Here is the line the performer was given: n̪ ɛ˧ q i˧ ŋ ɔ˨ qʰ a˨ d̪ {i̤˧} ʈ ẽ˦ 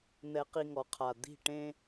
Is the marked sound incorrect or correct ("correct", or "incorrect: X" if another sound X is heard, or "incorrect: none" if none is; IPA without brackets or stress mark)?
incorrect: i̤˦˨